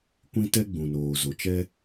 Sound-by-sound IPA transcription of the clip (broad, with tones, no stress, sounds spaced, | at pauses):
kʷ ĩ˦ t ɛ˦ ɡ͡b ũ˨ n oː˨ z o˨ t͡ʃ ɛ˦